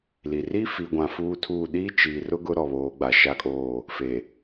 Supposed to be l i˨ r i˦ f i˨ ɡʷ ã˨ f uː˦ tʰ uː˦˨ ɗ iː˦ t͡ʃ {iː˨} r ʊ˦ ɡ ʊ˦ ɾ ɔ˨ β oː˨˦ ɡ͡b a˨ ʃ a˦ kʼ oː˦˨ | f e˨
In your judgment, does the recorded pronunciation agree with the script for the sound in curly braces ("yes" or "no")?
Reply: yes